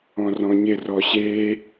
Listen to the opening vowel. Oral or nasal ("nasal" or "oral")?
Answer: nasal